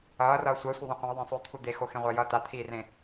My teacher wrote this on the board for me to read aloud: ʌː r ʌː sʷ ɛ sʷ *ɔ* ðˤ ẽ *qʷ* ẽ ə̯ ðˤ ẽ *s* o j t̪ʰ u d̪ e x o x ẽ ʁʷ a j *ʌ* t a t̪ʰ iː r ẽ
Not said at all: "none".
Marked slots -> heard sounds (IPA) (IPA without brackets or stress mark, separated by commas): ʌ, qʷ, sˤ, ʌ